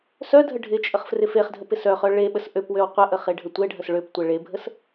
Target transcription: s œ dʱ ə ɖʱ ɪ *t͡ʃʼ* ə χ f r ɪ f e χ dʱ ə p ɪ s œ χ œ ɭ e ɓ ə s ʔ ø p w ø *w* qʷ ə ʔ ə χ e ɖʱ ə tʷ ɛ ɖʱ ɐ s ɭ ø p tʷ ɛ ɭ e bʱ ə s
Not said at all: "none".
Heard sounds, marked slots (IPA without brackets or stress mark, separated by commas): t͡ʃʼ, w